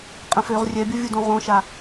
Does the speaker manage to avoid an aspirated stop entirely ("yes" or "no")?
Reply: yes